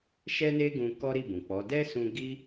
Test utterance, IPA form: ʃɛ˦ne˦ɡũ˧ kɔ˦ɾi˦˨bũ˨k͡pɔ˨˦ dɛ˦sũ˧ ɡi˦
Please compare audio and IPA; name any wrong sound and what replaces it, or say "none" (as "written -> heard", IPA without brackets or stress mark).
none